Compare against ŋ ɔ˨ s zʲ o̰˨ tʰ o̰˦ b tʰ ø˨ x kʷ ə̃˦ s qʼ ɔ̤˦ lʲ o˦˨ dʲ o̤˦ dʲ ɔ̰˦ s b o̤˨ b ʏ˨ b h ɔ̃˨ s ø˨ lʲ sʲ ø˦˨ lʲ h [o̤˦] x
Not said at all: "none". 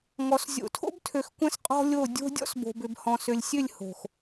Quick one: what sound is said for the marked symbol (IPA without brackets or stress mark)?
o̤˨